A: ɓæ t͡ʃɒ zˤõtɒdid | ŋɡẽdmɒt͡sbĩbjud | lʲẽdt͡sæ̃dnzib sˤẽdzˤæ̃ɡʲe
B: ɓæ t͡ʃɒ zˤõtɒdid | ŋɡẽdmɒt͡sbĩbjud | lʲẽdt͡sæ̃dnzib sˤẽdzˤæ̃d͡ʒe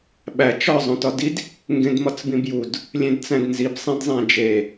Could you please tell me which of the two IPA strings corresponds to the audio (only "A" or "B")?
B